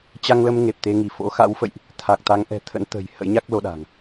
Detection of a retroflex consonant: absent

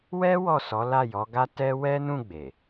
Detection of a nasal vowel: present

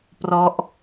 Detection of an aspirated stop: absent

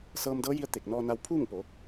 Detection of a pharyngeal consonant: absent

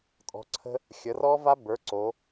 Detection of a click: present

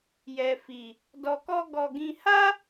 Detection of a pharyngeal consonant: absent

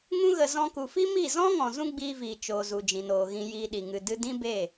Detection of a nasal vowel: present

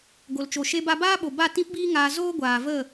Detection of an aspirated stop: absent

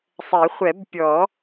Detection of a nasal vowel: absent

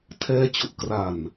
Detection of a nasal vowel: absent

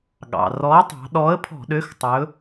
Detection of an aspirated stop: present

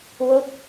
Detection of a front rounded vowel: absent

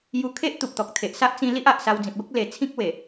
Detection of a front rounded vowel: absent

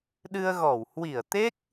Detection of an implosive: present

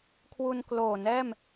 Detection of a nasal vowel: absent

